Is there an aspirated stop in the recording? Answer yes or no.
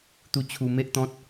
yes